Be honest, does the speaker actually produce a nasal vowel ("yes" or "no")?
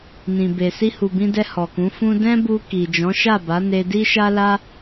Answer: yes